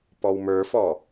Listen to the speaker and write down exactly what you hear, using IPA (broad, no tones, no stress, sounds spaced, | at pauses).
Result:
p ɔ w m ə˞ f ɔ